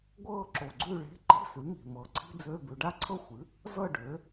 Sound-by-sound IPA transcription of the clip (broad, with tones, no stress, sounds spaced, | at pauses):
ɡʷ ɤː˥˨ ǁ o˨˩ ɡ͡ǀ ʉ˥˨ ɭ e̤˧˥˧ ǃ i̤˧˥˧ s ʉ˩˥ m i̤˨˩ m ɤ˩˥ ǀʰ i̤˥ d͡z ø˧˥˧ b ʉ˩˧ ɖ a˥˨ ǀʰ ɤ˥˨ xʷ ɨ˩˥ | z ɤ˥˨ ɖ ø˩˥